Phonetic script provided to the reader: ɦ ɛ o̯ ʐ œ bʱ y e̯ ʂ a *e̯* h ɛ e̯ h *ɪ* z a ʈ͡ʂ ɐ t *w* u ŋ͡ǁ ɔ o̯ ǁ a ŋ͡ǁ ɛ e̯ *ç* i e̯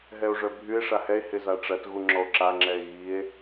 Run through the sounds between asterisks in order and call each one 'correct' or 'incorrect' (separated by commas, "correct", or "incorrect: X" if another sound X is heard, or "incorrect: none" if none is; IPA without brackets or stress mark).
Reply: incorrect: none, correct, incorrect: ɣ, incorrect: ɣ